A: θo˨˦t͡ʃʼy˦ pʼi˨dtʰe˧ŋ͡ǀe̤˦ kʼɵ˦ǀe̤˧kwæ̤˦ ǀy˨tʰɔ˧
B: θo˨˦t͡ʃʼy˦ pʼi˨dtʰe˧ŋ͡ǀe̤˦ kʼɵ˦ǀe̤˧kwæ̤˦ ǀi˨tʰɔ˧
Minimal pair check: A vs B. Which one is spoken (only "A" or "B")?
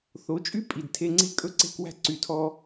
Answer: A